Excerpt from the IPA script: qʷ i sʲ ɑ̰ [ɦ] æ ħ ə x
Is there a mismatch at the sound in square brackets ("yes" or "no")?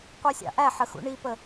yes